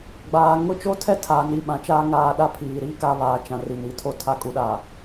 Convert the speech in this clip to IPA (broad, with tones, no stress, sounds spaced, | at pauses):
ɡ͡b aː˨ ŋ ʊ˦ t͡ʃ o˦ tʰ ɛ˦ tʰ aː˨ n i˨ ɓ ã˨ t͡ʃ aː˦ ŋ aː˦ ɗ a˦ pʰ iː˨ ɾ iː˦ k a˦ β aː˨ t͡ʃ ã˨ r i˨ n i˨ tʰ o˦ tʰ a˦ kʼ u˨˦ ɗ a˨